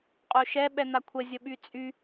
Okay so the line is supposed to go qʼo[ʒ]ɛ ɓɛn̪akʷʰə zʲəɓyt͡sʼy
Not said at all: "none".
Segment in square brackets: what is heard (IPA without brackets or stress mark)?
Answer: ʃ